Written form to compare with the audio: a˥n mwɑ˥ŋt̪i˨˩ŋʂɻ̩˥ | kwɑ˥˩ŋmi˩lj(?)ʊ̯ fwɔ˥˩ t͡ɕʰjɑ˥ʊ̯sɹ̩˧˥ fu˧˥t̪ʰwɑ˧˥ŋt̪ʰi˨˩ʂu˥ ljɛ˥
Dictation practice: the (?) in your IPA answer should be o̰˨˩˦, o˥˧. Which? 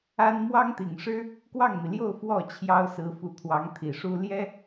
o˥˧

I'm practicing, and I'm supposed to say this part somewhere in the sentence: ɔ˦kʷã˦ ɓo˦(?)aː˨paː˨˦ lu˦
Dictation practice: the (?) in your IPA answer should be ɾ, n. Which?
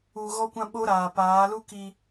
ɾ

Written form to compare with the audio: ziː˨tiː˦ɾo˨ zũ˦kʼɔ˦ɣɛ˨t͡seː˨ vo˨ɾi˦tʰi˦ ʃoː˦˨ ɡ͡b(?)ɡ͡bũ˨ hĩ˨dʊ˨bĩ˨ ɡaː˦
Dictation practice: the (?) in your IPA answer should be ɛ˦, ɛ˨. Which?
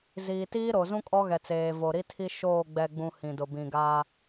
ɛ˨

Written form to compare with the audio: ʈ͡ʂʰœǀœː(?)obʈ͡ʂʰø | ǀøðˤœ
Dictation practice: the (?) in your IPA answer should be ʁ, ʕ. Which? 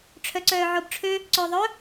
ʕ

